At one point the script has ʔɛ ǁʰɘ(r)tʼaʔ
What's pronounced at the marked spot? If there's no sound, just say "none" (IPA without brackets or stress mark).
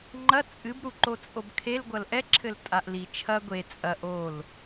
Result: l